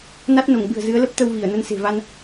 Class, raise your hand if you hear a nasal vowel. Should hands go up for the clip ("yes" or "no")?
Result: no